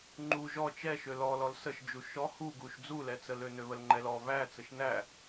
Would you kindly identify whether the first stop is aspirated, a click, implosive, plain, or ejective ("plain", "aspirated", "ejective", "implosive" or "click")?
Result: click